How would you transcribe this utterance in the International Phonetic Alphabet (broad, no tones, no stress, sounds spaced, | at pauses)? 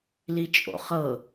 l i t͡ʃʼ o̰ χ ɤ